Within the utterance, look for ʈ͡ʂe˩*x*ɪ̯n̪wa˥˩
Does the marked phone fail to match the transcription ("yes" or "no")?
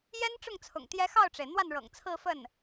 yes